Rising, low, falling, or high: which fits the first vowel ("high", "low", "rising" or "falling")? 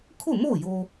falling